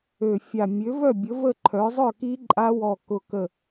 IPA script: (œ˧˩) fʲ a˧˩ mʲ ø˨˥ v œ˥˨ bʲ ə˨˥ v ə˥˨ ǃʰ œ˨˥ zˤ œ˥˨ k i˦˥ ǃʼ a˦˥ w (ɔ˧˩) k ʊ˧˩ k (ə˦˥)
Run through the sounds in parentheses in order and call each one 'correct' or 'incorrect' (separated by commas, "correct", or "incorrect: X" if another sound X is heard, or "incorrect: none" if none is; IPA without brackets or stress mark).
incorrect: ø˧˩, correct, incorrect: ə˧˩